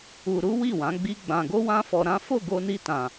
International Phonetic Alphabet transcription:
u˧ɾu˦wi˦˨ wã˨˦ɡ͡bi˦ɡ͡bã˧ ɡo˦wã˦fɔ˧ɾã˦ fo˦˨ɡo˧ni˧tã˨

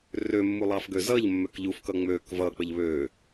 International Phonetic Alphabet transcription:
rømːulˠɑfɡø zʌʎmːøk ʎufkʌ ŋ͡møk vʌk͡pəʎ βø

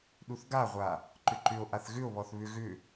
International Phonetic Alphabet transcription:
ɗuθɡaʁʷa | ǃʏǃʏo̯ʔaθ ɣʏo̯βɔθ βʏ ɣʏ

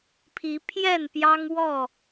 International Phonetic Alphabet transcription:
pʰi˨˦ pʰjɛ˥˨npjɑ˦ŋwɔ˥˨

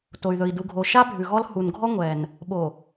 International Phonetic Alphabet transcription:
to˨y̯ðɵ˨i̯du˨ɡʱo˨ ʃa˦ bʱʉ˨ɣɔ˦l hu˨nɡʱɔ˦ ŋʷɛ˨n | ɓo˨

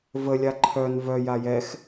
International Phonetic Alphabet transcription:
vəlʲa ǃʰœn vœ jajɛx

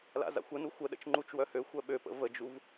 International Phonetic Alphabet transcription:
la̰za̰xʷənu xʷəɗə̰t͡ʃ ŋ͡ǃut͡ʃwœhø xʷœɓøpə̰ vəd͡ʒuv

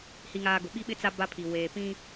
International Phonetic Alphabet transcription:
hi˦ŋaː˦ ɡʊ˨ɓi˦ɓɪ˦ t͡sa˦ ba˦pʰi˨ weː˨pĩ˦

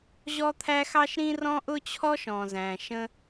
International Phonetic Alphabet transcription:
ʑɔ˥t̪ʰæ˥ xɑ˥ʃɾĩ˥rɔ̃˥ ʔʊ˥t͡ɕʰɔ˥ʃɔ̃˩zæ̃˩ ʃə̃˥

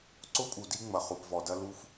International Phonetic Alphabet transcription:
ǀʊ˦pʼu˨di˦ ŋ͡mɐ˨ χu˨pvɔ˨dɐ˦ lu˦f

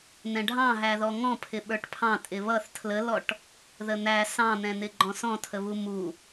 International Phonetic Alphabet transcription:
n̪ɛ̃ɖʱɑ̃ɦæðɔ ŋɔ̃pʰɪ ɓə˞ʈpʰɑ̃ tʼɪβʌθ tʰləlɔʈ | ðən̪æ sɑ̃n̪ɛ̃n̪ɪ ɡ͡ǃɔ̃sɔ̃tʰəβu mu

